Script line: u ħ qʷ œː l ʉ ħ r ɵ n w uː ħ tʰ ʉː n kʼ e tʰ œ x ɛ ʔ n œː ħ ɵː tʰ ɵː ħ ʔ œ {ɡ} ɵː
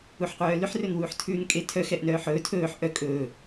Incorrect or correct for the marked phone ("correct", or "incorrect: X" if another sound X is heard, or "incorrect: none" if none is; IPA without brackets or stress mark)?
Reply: incorrect: kʼ